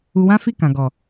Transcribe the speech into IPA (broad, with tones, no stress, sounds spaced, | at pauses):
u˧ w ã˦ f i˦˨ k ã˨ ɡ ɔ˨